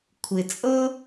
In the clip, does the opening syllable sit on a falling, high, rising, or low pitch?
low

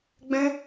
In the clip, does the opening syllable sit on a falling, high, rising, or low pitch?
high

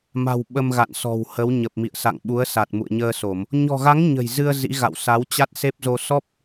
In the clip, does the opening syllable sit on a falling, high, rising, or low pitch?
low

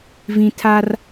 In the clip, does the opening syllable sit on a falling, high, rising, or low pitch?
high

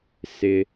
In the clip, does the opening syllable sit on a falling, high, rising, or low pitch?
low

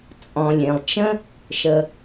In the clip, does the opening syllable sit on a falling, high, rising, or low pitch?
low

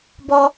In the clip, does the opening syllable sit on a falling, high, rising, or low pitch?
low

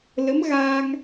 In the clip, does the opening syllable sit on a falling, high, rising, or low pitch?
rising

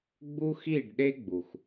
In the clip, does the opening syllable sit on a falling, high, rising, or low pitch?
high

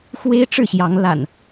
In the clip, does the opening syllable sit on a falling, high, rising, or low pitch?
high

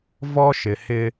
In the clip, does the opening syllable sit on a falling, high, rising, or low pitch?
high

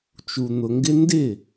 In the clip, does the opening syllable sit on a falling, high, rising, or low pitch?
low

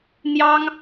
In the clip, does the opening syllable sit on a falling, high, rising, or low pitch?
high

